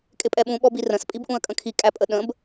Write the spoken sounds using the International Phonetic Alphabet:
kʼ ɪ pʼ ɛ ɓ ũ ɓ ɔ b i r ə̃ s pʼ i b ʔ ũ ə̯ kʼ ə̃ kʰ i kʼ æ pʼ ə ɗ ə̃ b

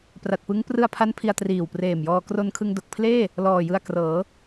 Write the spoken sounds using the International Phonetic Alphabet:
p r a˨˩ t̚ p ɯ˦˥ ŋ p r ɯ˧ a̯ pʰ a˦˥ n pʰ i˧ a̯ t r iː˨˩ w p r eː˨˩ m j ɔː˧ k r o˧ n kʰ ɯ˧ ŋ d o˨˩ k̚ pʰ l eː˥˩ | l ɔː˨˩ j ɯ˧ a̯ k r ɤː˩˦

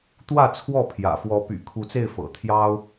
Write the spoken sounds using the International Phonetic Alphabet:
t̪ w ä˥˨ t͡sʰ w ɔ˥˨ pʰ j ä̰˨˩ f w ɔ˨˦ p y̰˨˩ kʰ u˨˦ t͡s e˥˨ ɪ̯ f ɤ̰˨˩ t̪ʰ j ɑ˦ ʊ̯

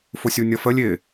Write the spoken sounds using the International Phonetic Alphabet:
f ʊ sʲ u nʲ ʌ f ə lʲ ɪ

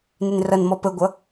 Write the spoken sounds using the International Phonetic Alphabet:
n ɪ n r ʌ n m ɔ p ə ɡʷ ʌ

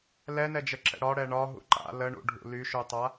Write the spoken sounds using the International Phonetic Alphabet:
l ɛ n ɛ d͡ʒ ə ǁ ɛ̰ ɽ ɒ ɽ ɛ ɳ ɒ ɦ ṵ ǃ a̰ l ə ɳ ṵ ɖʱ ṵ l y ʃ u tˤ a

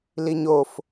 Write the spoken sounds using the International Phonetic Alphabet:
l i ɲ o f

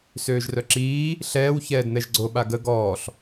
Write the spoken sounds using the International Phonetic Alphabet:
s øː ʒ r œ ǁ iː | ɬ ɛː w ç ɛː d n̪ ɛ ʒ ɡ͡ǀ o ɓ a ɡ ə ɡ ɔː ɬ

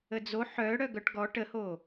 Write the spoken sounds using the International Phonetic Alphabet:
ə d͡z o ħ œ ɽ œ ɡ œ ʈ ɡ ɔ ʈ ə h o

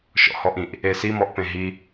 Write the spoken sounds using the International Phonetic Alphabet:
ʃ ɔ̰ h ɔ ʔ ĩ ʔ | e s i m ɔ ʔ p ẽ ɦ i

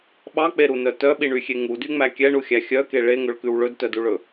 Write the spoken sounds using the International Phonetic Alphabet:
ɓ ɑ k͡p e ɾ u n œ t œ ɓ i ɳ y xʲ e ŋ u d y ŋ͡m æ kʲ ɛ ɳ u xʲ æ xʲ œ k e ɭ e ŋ ɵ ɭ k ʉ w ɭ ɵ d t œ d u ɭ ɵ

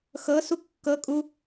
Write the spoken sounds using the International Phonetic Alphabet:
x ɤ s u kː ɤ kʼ u

